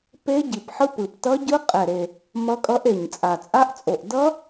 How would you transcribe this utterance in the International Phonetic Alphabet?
pe˦˥ɟi˨˩pħɯ˦˥p ɯ˨˩p tʌ˦˥ɟɯ˦˥ qʼɛ˨˩ɾe˨˩ | mʌ˦˥kʼʌ˦˥ʔe˨˩ɲt͡sʼa˨˩ t͡sʼa˦˥ʔt͡sʼo˨˩ʔ dʌ˦˥

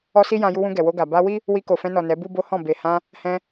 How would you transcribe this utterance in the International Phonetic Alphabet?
ɔ˦si˦jã˧ ju˧wũ˧ ɡɛ˨wo˧ɡa˨ ba˧wi˦ | wi˧ko˨fɛ̃˧nɔ˨ nɛ˨˦bu˦bo˦hɔ̃˦˨ be˨hã˧ | hɛ̃˧

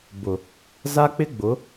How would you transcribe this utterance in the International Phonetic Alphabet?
bʊ˨ | za˦k͡pɪ˦ ɡ͡bʊ˨˦

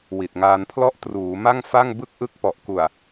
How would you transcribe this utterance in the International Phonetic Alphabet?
wi˨˩t̚ŋaː˧npʰlɔ˥˩ʔ truː˩˦ma˥˩ŋfa˥˩ŋ bɯ˥˩k̚ʔɯ˥˩k̚ pɔ˨˩ʔku˨˩a̯

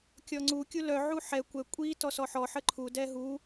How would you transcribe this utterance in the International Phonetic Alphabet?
kʲɔŋ͡ǀu kʲulœ ʕuħɛ kʷɛ kʷʼi tɔsɔħɔ ħəǃʰu dɛɦu

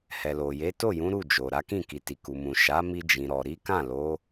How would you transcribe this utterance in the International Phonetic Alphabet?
hɛ˨lo˨je˨˦ to˦˨jũ˨˦ ɾu˦˨d͡ʒo˨ɾa˨˦kĩ˦˨ ki˨ti˨ku˨ mũ˨ ʃa˨˦ mi˧d͡ʒĩ˨ɾɔ˨ ɾi˨˦kã˦˨lo˨˦

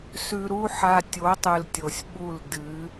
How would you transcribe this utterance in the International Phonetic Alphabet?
sʉ˧ɾu˦ħa˧ tʲo˨˦tˤɨ˨l tʲo˨sʲɓu˦˨l dɨ˨˦

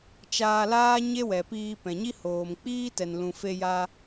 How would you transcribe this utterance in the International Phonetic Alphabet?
t͡ʃaː˧laː˦ ɲe˦wɛ˨piː˧ pɛ̃˨ɲi˦ hoː˨mk͡piː˦ tɛ˨nlũ˨ fe˧ja˧

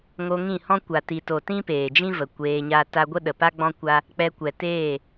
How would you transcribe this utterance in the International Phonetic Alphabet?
ŋo˧ŋĩ˦˨hɔ̃˦ kʷa˨ti˨to˨ tĩ˦peː˨d͡ʒĩ˦və˨ kʷeː˧ɲa˦ ta˦ ɡʷə˦ɗə˨pa˦ ɡ͡bɔ̃˦kʷa˦ | k͡pɛ˧kʷɛ˨teː˦˨

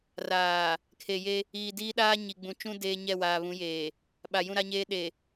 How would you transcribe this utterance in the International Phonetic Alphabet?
raː˨ | kʰe˨je˦ | iː˨diː˦ɗaː˦ ɲi˨ɡ͡bũ˨t͡ʃũ˦ deː˦ɲɛ˦˨waː˨ βũ˨˦jeː˨ | ɓa˨jũ˦˨ɾa˦ɲeː˦ ɗe˨

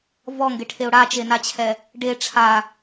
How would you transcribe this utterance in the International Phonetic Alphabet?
vɔŋɡeʈʰeʊ̯ ɽat͡ʃenat͡ɕʰɛ | ɖe ʈ͡ʂʰa

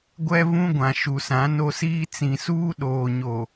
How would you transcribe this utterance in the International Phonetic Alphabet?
ɡʷɛ˦vũ˦ɡʷã˨ ʃu˨sã˨˦no˦siː˦ t͡sĩ˨suː˦ ɗoː˨ɲo˨

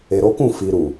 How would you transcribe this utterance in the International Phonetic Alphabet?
e˨ɾo˨˦kũ˦˨ fi˨ɾu˨

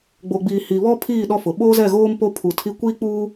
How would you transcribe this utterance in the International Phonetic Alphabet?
ɡ͡bo˨ɡ͡biː˨ hi˨βɔ˦ pʰiː˦˨ ɗɔ˦fʊ˨ ɓoː˦zɛ˦˨ɣoː˦m po˦pʰu˨ tʰi˦ kʷiː˦k͡puː˦

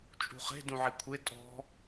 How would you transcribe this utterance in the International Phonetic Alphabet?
t͡ʃʼṳχe̤ dũʕikʷʰe tʼɔ̤

